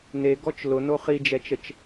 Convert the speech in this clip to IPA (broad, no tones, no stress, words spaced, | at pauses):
neɡɔt͡ʃ lʊno χid͡ʒɛt͡ʃət͡ʃ